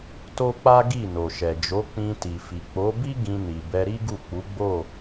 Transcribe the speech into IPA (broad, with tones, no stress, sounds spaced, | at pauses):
t o˦ k͡p a˦ ɡ i˦˨ n o˨ ʃ ɛ˨ d͡ʒ o˨˦ k͡p ĩ˧ t i˨ f i˨ k͡p o˨˦ b i˦ ɡ ĩ˧ n i˨ b ɛ˧ ɾ i˦ ɡ u˦˨ k͡p u˨˦ ɡ͡b o˦˨